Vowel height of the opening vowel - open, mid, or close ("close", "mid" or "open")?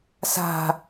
open